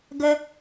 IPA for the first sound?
ɡ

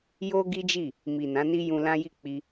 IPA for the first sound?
j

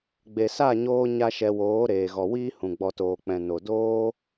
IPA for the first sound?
ɡ͡b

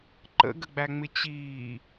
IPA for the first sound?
ǃ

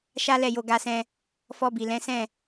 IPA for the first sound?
ʃ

